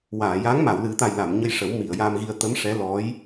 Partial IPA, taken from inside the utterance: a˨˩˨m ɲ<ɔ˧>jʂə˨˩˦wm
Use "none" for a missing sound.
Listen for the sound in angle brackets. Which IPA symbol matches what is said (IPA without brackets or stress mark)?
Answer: ə˧